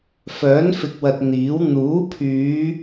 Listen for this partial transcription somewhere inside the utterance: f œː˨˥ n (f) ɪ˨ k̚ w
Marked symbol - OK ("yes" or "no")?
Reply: yes